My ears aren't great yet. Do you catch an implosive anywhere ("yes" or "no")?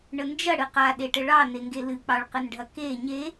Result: yes